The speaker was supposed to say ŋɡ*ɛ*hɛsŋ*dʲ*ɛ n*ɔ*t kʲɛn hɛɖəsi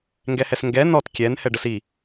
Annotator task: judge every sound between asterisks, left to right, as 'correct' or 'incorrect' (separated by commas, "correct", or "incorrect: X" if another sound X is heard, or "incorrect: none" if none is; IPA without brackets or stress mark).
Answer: correct, incorrect: ɡ, correct